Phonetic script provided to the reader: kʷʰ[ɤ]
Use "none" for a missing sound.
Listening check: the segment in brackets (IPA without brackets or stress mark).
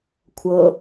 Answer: ɤ